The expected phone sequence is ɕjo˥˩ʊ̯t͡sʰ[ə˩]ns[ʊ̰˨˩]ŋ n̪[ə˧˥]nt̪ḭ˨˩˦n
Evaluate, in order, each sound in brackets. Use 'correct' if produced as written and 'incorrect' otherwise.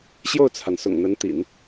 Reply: incorrect: a˩, correct, correct

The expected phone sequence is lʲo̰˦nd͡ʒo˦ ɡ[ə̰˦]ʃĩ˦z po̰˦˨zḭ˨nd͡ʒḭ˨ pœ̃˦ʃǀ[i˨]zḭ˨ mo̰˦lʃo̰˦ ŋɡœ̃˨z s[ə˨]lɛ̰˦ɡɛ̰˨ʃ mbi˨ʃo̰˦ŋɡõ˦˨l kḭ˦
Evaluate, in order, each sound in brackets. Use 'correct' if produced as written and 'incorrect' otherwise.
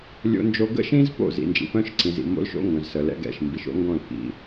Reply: correct, incorrect: ĩ˨, correct

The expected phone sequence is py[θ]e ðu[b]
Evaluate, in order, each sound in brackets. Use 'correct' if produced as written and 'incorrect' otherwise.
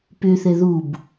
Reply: correct, correct

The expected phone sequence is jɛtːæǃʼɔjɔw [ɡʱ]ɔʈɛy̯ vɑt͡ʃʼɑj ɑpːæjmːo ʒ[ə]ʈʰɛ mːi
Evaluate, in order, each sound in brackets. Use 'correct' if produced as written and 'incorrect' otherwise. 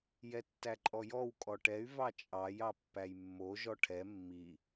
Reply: incorrect: kʼ, incorrect: ɔ

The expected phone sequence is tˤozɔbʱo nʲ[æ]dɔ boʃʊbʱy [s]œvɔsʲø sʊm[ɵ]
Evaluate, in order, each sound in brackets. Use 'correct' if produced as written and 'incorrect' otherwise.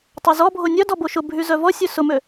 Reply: incorrect: œ, incorrect: z, incorrect: ø

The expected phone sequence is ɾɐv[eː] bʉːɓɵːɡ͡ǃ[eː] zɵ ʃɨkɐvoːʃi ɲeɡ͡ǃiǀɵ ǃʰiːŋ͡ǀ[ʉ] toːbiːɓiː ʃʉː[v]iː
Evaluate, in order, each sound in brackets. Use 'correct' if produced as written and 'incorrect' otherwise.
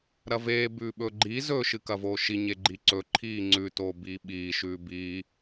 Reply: correct, incorrect: iː, correct, incorrect: b

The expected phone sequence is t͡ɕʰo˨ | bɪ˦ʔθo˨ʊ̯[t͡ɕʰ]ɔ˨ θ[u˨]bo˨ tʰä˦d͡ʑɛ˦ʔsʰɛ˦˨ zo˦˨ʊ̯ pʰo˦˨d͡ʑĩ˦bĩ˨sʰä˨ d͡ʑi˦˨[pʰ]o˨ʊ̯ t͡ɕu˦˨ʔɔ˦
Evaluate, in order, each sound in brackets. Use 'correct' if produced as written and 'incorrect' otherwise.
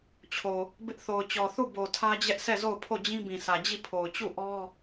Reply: incorrect: t͡ɕ, incorrect: u˦˨, correct

